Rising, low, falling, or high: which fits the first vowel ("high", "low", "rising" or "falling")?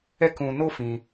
high